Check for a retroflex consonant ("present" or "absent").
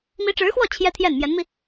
present